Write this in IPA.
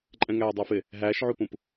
ǃʼ ɛ̃ ŋ æː dˤ æ f ɪ | ɦ æː ʃ ʕ u p ũ p

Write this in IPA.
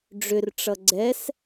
ɖ͡ʐ ʏ r ʈ͡ʂ ʌ ɡ͡ǀ ɛ s

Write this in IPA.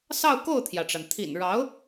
s ɑ˥˧ ʊ̯ k o˥˩ ʊ̯ t̪ʰ j ä˩ ʈ͡ʂ a˩ n t̪ʰ ḭ˨˩ n ɻ ɑ˧˥ ʊ̯

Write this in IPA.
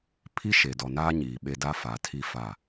pʰ i˦ ʃ e˨ d ɔ˨ n aː˦ ɲ iː˨ ɓ e˦ d a˦ f a˨ tʰ i˦ f a˦˨

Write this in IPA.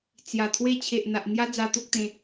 t͡s j a˨˩ t̪ʰ w e˦ t͡ɕʰ e˨ ʔ n̪ a˨ ʔ n̪ j a˦ d͡z a˧ t̪ o˦ k̚ t̪ ẽ˧

